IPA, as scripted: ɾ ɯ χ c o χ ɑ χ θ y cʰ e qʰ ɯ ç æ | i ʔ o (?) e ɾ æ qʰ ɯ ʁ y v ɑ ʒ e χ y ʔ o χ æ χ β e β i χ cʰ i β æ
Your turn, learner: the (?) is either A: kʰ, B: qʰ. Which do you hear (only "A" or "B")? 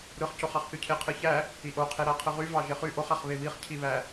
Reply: B